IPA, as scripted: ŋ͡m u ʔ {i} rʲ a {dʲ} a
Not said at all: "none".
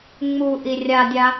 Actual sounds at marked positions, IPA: i, dʲ

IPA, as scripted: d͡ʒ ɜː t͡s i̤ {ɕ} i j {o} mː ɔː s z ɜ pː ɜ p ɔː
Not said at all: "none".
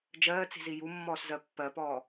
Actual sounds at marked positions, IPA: z, u

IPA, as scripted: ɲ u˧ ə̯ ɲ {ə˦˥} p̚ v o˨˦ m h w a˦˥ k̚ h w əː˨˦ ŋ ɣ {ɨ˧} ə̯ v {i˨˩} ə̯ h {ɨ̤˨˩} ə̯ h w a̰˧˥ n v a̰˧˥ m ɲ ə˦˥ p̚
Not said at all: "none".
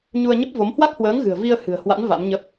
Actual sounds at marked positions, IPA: ə˦˥, ɨ̤˨˩, i˧, ɨ̤˨˩

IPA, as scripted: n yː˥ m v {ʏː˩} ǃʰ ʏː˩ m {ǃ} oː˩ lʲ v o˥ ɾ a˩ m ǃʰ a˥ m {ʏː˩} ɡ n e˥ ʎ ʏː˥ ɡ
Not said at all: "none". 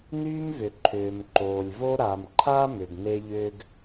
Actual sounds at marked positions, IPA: ʏ˩, ǃ, ʏ˩

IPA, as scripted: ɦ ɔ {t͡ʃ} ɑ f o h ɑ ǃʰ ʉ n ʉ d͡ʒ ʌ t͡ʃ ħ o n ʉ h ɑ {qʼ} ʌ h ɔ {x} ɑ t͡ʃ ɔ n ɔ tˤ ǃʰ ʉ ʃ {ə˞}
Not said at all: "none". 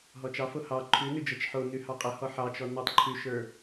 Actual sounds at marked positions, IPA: t͡ʃ, qʼ, ħ, ə˞

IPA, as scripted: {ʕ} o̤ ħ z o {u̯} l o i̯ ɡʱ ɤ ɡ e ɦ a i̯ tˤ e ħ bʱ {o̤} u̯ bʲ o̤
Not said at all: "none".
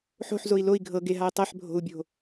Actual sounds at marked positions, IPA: ħ, i̯, o̤

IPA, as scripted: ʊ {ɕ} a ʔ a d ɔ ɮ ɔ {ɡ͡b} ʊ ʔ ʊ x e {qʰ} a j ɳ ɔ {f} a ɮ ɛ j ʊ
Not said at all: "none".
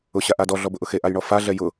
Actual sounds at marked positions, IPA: ɕ, b, ʔ, f

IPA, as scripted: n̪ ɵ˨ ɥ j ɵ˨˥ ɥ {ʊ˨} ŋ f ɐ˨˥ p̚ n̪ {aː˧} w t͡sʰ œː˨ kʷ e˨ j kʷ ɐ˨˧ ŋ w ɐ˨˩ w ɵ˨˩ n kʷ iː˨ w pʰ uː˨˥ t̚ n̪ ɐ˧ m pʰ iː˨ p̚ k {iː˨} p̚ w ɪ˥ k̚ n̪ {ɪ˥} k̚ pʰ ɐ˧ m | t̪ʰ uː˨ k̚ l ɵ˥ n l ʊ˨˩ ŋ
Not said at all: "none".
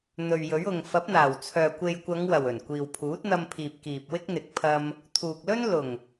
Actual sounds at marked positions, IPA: ʊ˨, aː˨˩, iː˨, ɪ˨˥

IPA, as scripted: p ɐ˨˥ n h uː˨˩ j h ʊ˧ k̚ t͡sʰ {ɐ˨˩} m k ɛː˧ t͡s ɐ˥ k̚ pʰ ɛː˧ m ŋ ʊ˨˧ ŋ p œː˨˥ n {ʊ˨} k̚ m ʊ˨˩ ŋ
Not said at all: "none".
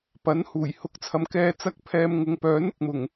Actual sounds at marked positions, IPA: ɐ˨, ʊ˨

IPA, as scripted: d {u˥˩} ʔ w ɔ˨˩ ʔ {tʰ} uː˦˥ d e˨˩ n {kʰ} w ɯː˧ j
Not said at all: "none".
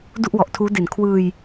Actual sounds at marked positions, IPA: u˥˩, tʰ, kʰ

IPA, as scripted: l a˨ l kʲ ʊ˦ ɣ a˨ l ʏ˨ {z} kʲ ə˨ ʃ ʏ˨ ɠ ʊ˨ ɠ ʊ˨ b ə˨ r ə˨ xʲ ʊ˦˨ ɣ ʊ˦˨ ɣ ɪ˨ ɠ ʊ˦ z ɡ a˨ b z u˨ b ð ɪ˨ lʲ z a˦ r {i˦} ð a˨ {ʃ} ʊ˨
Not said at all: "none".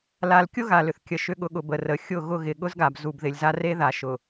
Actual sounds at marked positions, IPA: θ, e˦, ʃ

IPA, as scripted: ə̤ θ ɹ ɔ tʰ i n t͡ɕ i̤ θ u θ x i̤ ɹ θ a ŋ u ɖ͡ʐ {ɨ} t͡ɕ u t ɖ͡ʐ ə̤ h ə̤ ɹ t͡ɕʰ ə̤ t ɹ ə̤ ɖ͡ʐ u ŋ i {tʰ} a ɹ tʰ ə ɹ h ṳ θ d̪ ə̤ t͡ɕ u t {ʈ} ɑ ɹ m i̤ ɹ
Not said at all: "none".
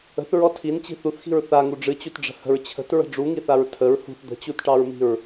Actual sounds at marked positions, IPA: ɨ, θ, ʈ

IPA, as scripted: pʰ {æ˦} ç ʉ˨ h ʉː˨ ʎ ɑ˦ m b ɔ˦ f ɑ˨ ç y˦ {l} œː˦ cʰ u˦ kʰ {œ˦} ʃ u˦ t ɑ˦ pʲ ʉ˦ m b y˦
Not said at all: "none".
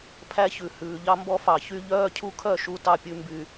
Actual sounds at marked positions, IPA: æ˦, ʎ, œ˦˨

